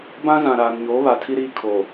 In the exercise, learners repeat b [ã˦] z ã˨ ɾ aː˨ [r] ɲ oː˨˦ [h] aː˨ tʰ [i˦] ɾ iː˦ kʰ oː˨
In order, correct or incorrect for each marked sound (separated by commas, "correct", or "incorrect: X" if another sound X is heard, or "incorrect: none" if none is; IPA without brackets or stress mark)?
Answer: correct, incorrect: n, incorrect: β, correct